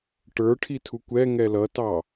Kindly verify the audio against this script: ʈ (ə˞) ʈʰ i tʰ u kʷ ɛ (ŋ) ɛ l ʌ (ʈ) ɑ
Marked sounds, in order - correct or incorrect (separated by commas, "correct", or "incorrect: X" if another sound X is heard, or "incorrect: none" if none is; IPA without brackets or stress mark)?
correct, correct, incorrect: t